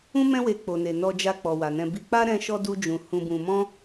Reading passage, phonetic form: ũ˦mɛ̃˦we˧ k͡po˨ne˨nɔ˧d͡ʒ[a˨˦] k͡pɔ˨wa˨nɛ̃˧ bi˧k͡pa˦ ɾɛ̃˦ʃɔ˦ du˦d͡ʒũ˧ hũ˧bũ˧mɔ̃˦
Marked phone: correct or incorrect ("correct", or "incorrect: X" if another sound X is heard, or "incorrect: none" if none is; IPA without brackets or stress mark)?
incorrect: a˧